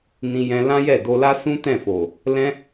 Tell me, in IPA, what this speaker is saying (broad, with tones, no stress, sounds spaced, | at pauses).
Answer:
n ĩ˧ j ɛ̃˧ l ã˦ j ɛ˦˨ d o˧ l a˦ s ũ˦ t ɛ̃˦˨ f o˨ | l ɛ̃˧